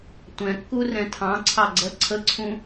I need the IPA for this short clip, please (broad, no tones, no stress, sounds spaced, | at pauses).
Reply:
tʷ ɛ̃ kː u r ɛ̃ tʰ ɑ̃ ǀʰ ɑ ɡ͡ǀ ɜ ǀʰ ə ǀʰ ũ